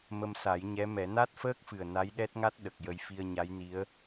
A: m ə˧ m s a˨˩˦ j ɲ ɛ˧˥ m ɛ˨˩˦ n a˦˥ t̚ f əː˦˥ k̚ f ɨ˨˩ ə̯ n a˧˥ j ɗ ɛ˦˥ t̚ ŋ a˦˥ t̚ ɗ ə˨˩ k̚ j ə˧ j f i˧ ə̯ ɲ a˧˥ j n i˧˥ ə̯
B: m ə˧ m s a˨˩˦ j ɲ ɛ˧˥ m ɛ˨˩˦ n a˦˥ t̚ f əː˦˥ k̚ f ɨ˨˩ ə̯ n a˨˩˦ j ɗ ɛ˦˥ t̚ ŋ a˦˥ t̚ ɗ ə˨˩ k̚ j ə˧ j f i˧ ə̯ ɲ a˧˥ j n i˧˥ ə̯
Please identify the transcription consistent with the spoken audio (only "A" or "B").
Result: A